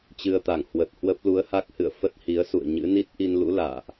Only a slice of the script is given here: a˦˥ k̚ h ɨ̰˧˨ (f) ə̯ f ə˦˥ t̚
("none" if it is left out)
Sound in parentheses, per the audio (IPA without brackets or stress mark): none